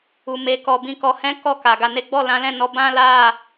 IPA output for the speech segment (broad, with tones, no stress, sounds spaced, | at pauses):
u˨ m e˨ k ɔ˨ b ĩ˨ k ɔ˨ h ɛ̃˨˦ k ɔ˦˨ k a˨ ɡ a˨ n e˨˦ ɡ͡b ɔ˦˨ l ã˨˦ l ɛ̃˦˨ n ɔ˧ b ã˦ l a˦˨